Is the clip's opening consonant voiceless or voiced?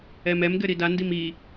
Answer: voiced